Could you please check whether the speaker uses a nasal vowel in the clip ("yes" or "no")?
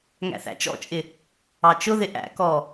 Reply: no